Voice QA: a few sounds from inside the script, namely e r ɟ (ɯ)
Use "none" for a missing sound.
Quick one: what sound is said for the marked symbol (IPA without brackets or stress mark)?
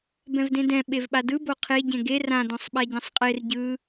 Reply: ɯ